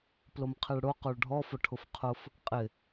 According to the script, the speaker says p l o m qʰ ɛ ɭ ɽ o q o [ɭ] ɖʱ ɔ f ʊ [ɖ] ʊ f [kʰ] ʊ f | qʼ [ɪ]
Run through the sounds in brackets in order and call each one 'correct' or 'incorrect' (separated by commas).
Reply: correct, incorrect, incorrect, correct